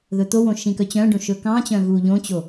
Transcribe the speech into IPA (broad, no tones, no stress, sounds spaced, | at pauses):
ð ɵ t̪ o w õ ʃ ĩ k œ t͡ɕ œ̃ ɖ õ ʃ ɵ k ɑ̃ t͡ɕ œ̃ ɣ uː ʎ õ t͡ɕ o